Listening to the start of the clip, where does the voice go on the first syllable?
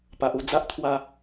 low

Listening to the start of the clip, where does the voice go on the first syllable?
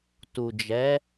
low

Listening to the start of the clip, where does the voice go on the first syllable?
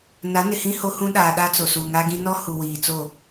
rising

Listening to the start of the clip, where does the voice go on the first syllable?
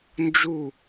falling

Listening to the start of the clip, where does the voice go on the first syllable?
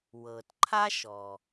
low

